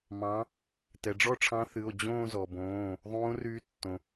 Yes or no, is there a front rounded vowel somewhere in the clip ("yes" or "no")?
yes